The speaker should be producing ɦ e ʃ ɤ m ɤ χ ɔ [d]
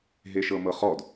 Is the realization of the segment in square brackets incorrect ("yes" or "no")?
no